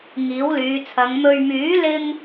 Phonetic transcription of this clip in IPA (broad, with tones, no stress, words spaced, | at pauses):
ŋiː˨˥wlyː˨˧t͡sʰɐ˨˧ŋ mɵ˨ɥmyː˨˥lɪ˧ŋ